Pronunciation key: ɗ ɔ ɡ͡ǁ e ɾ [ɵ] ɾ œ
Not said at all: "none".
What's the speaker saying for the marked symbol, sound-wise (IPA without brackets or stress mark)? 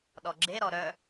ɔ